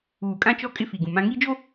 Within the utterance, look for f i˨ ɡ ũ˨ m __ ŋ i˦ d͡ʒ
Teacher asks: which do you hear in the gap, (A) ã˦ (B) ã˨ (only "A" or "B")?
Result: A